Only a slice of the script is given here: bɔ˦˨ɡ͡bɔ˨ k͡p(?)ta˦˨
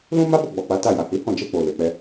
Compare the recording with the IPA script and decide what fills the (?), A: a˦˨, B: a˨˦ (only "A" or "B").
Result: B